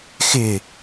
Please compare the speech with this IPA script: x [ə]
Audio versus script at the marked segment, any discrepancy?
yes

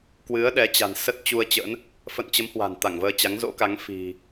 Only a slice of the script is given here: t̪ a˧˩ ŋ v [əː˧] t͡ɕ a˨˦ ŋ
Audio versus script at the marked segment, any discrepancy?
no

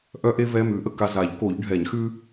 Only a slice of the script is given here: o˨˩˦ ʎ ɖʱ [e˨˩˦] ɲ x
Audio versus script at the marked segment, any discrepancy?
yes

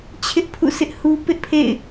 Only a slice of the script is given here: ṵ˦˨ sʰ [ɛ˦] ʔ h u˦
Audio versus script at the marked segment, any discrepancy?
yes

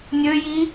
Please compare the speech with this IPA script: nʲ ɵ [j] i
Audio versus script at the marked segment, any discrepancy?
no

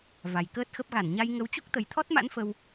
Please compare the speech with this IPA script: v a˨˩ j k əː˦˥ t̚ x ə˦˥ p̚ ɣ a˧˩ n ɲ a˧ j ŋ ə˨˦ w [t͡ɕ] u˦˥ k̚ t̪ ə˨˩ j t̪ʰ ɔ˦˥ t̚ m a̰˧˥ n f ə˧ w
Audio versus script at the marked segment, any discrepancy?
no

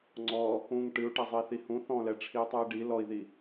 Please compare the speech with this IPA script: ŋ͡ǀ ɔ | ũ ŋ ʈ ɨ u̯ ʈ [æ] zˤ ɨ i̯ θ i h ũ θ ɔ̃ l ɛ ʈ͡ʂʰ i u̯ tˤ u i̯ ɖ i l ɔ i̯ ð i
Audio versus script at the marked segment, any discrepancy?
yes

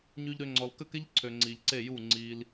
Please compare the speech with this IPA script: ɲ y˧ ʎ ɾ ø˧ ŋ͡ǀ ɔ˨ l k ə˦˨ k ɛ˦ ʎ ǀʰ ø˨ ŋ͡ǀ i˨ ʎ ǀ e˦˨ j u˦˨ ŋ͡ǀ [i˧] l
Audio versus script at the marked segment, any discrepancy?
no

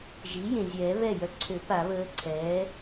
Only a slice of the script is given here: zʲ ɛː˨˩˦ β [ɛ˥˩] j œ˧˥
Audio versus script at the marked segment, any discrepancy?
no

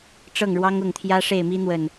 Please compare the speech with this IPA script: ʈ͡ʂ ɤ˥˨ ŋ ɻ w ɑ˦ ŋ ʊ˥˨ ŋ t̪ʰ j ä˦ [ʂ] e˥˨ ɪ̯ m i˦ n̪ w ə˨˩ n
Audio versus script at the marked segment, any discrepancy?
no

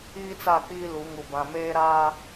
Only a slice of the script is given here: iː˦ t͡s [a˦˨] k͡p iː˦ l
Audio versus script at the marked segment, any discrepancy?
no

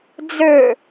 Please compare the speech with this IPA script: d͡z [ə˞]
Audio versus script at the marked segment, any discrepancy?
no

